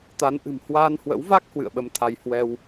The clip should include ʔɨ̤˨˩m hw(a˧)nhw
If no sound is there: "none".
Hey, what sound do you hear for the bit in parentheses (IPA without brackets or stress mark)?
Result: a˧